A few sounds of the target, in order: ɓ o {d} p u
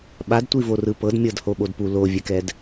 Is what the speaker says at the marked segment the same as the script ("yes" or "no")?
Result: yes